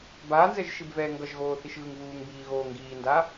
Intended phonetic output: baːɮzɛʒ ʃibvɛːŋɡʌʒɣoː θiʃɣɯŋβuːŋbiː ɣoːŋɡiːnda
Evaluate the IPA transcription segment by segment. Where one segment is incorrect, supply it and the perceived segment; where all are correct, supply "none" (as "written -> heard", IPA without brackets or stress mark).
ɮ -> n